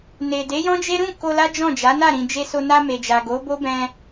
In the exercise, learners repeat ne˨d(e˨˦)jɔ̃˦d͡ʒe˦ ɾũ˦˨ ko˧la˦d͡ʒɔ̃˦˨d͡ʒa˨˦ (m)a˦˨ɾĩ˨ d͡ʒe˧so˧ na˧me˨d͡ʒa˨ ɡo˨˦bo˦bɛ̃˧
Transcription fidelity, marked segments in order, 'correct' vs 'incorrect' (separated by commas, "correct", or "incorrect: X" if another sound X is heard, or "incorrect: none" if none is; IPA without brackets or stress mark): correct, incorrect: n